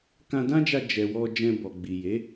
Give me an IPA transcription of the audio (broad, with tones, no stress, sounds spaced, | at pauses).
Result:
k ã˧ d ã˦ d͡ʒ a˧ d͡ʒ ɛ˨ w ɔ˧ d͡ʒ ɛ̃˧ b ɔ˨ ɡ͡b i˨ j e˨˦